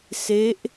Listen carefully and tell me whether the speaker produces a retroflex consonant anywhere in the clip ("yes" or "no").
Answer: no